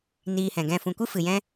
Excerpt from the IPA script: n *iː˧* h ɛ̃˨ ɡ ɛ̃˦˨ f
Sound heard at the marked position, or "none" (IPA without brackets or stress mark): iː˧